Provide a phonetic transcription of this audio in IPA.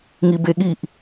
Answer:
ŋ i b e ɠ i ʔ

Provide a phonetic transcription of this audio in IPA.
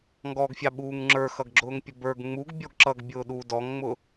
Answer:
ŋ ɡ ɔ ɡ fʲ ɑ ɓ uː ŋ ŋ͡ǁ ə˞ x ʌ ɡ ɡ͡ǁ ʊː ŋ pʲ ə b ə˞ ɡ ŋ͡m u ɡ bʲ ɔ ɡ ǁ ʌ ɡ bʲ ʊː ɗ uː d ɔ ŋ ŋ͡m ʊ

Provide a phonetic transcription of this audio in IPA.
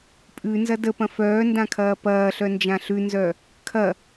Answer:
pʼ ʉ n z ɐ d ə p ɐ̃ f œː n d ã kʰ ɐː p ɐː ɬ œ n d͡ʒ ã ɬ ʉ n z œ | kʰ ɐ

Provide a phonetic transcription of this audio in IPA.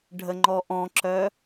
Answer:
ɖʱ ə ŋ͡ǃ ɔ ʔ ɔ̃ ǁ œ

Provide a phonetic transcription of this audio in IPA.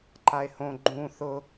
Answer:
ǃ a e̯ h õ ɡ͡ǃ ũ θ ʊ

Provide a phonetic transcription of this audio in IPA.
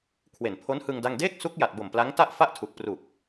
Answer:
kʰ w e˨˩ n pʰ o˦˥ n h ɯ˧ ŋ d a˥˩ ŋ d eː˥˩ k̚ s u˦˥ k̚ j a˨˩ t̚ b o˨˩ m p l a˦˥ ŋ t a˥˩ ʔ f a˥˩ ʔ tʰ u˨˩ k̚ p r u˨˩ k̚

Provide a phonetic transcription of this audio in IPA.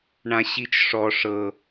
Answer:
ɳ ã ɕ i t͡ʃ ʂ ɔ ʂ ɤ

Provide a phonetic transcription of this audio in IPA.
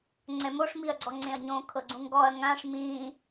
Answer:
ŋ͡ǀ ɛ m o ʂ m i ɐ̯ ɡ͡ǀ ɔ ŋ͡ǀ ẽ ɐ̯ ɲ õ kʰ ɤ ɡ͡ǀ ũ ŋ ɡ ɔ ɐ̯ ŋ ã ʂ m ĩː

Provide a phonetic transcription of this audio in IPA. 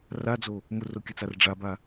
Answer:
r a d͡z o | m ʊ r o kʲ ə t͡s a r ɖ͡ʐ a b a

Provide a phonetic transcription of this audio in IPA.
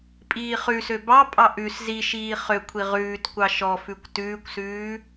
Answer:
pʼ iː χ ʉ s ø b ɑ pʼ ɑ ʔ ʉ s z i ʃ iː χ ø kʷʰ i ʁ ʉː t kʷ ɑ ʃ ɔ f ʉ kʷ t ʉː kʷ s ʉː

